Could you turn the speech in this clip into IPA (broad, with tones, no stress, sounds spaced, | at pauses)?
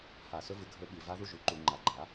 h a˧˩˧ s ɵ˧˥ v ɨ˩˥ ɡʱ ɵ˧˥ ɓ i˧˩˧ v a˧˥ ð u˥˧ ʒ ʉ˩˥ ǃ u˧˩˧ ŋ͡ǃ a˩˥ ɡ͡ǃ a˩˥